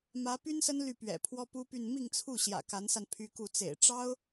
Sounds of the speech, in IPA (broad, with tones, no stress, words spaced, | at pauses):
mä˧˥py˥nsə˥n ly˥˩pɥɛ̰˨˩pʰwɔ˥ pu˥py˥˧n mi˥˧ŋt͡sʰu˥˩ ɕjä̰˨˩ka˧˥nsa˧n pʰy˥ku˥˩ t͡sḛ˨˩ɪ̯ ʈ͡ʂɑ˥ʊ̯